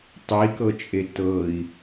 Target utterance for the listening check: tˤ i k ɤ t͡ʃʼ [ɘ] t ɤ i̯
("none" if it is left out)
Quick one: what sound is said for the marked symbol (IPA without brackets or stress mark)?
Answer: e